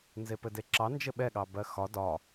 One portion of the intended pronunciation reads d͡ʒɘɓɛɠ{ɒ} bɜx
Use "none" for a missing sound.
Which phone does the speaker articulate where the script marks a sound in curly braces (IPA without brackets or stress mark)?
ɑ